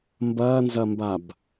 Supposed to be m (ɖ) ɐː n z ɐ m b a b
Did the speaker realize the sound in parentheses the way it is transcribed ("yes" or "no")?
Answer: no